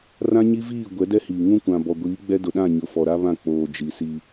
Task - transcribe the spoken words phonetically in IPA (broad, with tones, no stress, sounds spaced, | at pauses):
r ã˦ ɲ i˦ v iː˦˨ ɡʷ ɛ˨˦ d ɛ˦ h iː˨ ŋ ũ˦ kʷ ã˨ b ɔ˨ ɡʷ iː˨˦ ɡ͡b ɛ˦ d ʊ˨ ɗ ã˦˨ ɲ ʊ˨ f ɔ˨ ɾ a˦ β ã˦˨ k͡p oː˨ d͡ʒ i˨ s i˦